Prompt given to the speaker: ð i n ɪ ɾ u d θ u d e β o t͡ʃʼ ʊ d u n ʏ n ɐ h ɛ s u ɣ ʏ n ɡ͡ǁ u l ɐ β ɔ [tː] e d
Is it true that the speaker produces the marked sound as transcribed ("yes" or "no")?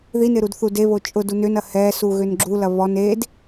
no